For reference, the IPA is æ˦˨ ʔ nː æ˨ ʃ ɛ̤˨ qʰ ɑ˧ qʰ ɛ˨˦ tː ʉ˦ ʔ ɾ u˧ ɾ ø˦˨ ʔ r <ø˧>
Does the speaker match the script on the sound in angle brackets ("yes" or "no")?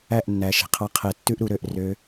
yes